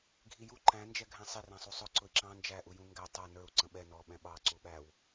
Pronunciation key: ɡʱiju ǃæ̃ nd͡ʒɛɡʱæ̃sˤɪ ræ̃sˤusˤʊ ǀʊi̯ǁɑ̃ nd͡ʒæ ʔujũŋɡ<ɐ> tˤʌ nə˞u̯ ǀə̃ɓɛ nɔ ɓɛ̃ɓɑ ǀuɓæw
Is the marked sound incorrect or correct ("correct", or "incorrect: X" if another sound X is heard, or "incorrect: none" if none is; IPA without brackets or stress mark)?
incorrect: æ